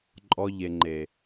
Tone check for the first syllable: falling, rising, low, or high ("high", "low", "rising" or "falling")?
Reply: low